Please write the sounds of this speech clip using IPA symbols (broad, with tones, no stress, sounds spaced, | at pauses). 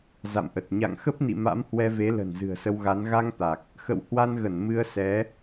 z a̰˧˨ m ʔ ə˨˩ t̚ ɲ a̰˧˨ ŋ x ə˦˥ p̚ n ḭ˧˨ m a̰˧˥ m h w ɛ˧ v e˨˦ l ə̤˨˩ n z ɨ̤˨˩ ə̯ s ə˧ w ɣ a˨˦ n ɣ a˧ ŋ t̪ a˨˩ k̚ | x ə̰˧˨ w h w a˧ n ɣ ə˧˩ n m ɨ˧ ə̯ s ɛ˨˦